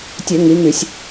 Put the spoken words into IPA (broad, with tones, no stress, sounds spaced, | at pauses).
tʲ ø˧˩˧ ŋ i˩˧ ŋ y˧˩˧ sʲ